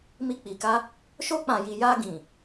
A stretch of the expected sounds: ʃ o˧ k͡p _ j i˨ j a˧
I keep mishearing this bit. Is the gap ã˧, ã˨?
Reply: ã˨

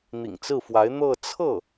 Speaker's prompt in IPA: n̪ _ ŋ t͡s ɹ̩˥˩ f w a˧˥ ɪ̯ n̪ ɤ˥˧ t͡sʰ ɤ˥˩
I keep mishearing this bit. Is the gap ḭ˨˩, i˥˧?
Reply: ḭ˨˩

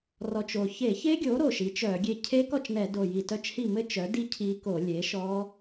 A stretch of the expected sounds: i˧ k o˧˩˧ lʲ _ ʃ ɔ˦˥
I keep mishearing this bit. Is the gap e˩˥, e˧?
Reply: e˩˥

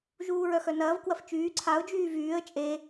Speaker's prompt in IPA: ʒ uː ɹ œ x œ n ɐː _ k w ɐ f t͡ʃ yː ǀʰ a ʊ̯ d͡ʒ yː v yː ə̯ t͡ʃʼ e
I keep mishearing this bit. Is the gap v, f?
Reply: v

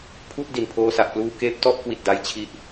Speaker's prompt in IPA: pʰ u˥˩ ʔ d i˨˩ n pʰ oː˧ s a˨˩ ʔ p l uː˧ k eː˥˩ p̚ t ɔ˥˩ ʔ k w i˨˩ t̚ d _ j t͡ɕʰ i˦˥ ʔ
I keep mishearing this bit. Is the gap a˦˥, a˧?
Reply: a˦˥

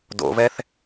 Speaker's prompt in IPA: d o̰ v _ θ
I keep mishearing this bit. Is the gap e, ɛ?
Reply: ɛ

